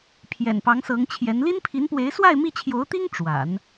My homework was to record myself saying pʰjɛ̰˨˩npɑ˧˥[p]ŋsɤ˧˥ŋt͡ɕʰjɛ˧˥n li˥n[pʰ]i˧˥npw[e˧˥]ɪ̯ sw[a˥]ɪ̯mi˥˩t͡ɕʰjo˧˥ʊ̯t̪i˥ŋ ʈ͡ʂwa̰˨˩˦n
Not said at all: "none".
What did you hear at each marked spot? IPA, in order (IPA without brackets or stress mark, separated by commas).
none, pʰ, e˧˥, a˥˧